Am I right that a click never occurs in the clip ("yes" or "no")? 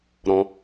yes